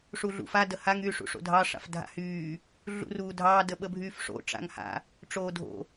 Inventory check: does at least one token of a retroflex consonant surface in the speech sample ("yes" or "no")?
yes